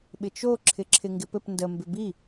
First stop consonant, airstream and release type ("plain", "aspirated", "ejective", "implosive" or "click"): implosive